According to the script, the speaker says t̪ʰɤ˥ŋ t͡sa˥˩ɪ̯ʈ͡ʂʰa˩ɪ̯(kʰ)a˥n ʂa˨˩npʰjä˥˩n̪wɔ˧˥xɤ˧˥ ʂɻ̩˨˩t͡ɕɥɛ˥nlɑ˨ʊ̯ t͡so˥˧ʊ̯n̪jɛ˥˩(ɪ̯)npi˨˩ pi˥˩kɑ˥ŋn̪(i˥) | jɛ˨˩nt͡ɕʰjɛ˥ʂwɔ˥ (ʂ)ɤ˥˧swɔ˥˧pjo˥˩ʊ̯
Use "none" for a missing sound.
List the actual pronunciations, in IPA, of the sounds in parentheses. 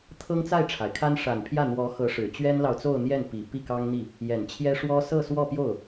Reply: kʰ, none, i˥˩, s

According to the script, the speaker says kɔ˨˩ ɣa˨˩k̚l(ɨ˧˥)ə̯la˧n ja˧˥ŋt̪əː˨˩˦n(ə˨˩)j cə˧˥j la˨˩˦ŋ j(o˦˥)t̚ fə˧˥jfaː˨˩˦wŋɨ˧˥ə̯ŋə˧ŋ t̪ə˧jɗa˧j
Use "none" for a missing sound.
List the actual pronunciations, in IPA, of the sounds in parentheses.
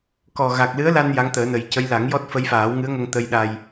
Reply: ɨ˧˥, ə˨˩, ɔ˦˥

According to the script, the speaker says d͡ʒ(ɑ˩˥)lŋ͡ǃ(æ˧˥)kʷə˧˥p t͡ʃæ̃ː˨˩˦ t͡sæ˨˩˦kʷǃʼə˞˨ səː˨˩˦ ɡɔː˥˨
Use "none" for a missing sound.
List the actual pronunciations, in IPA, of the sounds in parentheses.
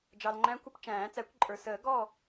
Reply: ɑ˨, æ̃˧˥

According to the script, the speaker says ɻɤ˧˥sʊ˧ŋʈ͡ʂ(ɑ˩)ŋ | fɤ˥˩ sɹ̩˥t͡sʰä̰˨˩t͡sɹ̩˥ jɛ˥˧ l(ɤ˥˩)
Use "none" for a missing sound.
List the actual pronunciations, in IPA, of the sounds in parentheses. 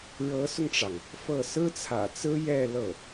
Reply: ɑ˩, ɤ˥˩

